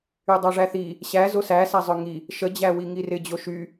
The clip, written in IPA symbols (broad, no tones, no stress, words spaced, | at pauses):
ydˤaʐæθi | ɕæ zosæsazˤœ ŋi | ʃəd͡ʑæwi ŋirɪd͡ʑo ʃy